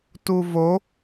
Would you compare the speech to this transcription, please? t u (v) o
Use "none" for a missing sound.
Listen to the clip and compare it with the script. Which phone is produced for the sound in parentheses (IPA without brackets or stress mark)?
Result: v